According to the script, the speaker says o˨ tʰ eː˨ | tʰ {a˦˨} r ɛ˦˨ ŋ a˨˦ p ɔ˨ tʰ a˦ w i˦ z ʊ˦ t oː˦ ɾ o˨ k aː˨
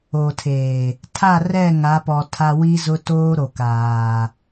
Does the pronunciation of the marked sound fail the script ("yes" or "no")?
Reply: no